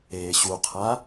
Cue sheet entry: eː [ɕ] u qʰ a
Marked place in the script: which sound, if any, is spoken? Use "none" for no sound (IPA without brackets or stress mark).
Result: ɕ